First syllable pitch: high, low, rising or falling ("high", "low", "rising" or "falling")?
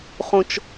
high